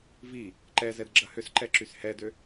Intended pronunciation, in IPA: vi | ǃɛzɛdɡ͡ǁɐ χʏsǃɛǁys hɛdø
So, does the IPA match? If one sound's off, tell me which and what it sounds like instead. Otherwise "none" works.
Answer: χ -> h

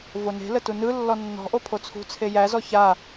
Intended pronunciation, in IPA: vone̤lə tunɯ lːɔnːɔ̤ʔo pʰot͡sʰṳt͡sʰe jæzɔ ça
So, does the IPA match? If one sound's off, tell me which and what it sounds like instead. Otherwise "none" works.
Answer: none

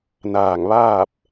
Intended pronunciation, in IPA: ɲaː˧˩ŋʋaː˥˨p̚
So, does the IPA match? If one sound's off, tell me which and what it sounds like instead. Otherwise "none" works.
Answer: ɲ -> n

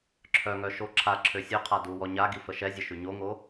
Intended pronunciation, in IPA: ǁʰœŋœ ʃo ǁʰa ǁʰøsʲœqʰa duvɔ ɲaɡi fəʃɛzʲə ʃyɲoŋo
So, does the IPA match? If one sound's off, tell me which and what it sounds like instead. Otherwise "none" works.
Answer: v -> w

